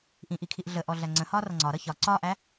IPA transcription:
ʔĩʔikʰiʔ ɮəʔɔɮæ ŋ͡ǀə̃hɒːrʌ ŋ͡ǀɒɾʌ çɒ ǀɒːʔæ

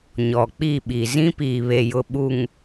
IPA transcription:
ɲɔ˨k͡pi˦˨ɓi˨ zĩ˦piː˨βe˨jʊ˨ ɓu˨ŋ

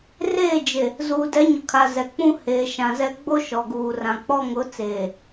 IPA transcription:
reː˦˨d͡ʒe˨ | zuː˨dɛ˨˦ɲʊ˨kʰa˨ zɛ˨k͡pũ˦ heː˨ʃã˨zɛ˦ ɡ͡bo˦ʃɔ˨ɡuː˨ rã˨k͡pɔ˦ ŋʊ˨˦t͡seː˨

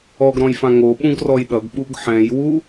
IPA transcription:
ɔɡɾɔ̃jfã ŋoɓũɡrɔj ɗʌɡɓuɡ ħɛ̃jwu

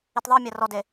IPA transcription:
itðˤɤmʲa rɔde

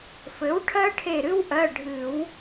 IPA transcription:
fɘ˩˥wʈʰɜ˥ ʈʰe˧˩ɾɨ˥wʔɜ˩˧˩ ɖʱɨ˨˩˦w

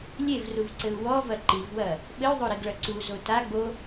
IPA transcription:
lʲevruvǀɘu̯ wɔvɐ ǃivwɐ | ɓɘy̯ðˤoɾiɡɭɐ ǀuzo taɡ͡bo

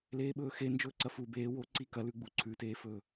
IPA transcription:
leːɓɵːxe nd͡ʒɵːǀɐfu beː woǀi kɐlʉɡ͡bu ǀʰʉteːfɵː

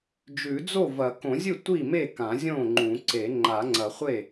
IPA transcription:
d͡ʒʉ˨˩˦d͡zo˥˩vɐ˨˩˦ kõ˨˩˦zʲɨ˥˩ tʷi˥˩me˥˩kã˨˩˦ zʲõ˥˩ŋ͡ǃũ˨˩˦ǀe˨˩˦ ŋ͡ǃa˨˩˦ŋ͡ǀɐ˨˩˦χʷe˥˩

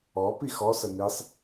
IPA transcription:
ɔ pixɔsə nisˤ

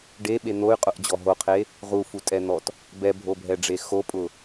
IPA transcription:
ɖeɓe n̪oy̯qʼʊʔd͡ʑɔ ɦoqʰe | ʁufutʼɛn̪ɔt | bɛbʱobʱɛɖ͡ʐe xopʼʊ

